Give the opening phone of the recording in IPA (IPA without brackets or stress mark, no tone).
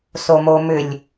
s